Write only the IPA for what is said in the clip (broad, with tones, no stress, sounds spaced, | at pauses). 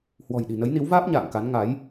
h w ɔ̤˨˩ j ɗ i̤˨˩ n ə˨˦ j n i˨˦ w v aː˦˥ p̚ ɲ a̰ː˧˨ ŋ k a˨˦ n ŋ a˨˦ j